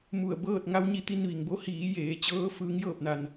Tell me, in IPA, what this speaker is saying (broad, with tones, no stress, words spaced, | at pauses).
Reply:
mu˧˩ə̯bɤː˥˨t̚ ŋa˧˥wɲi˧ t̪i˧nʋi˩ŋbo˧˥ hiː˩˧ jeː˩˧t͡ɕɤː˧˥ fɯː˧˥ŋjɤː˥˨p̚na˧n